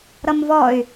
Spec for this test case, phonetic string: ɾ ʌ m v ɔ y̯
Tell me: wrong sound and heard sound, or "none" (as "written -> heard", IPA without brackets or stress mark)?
none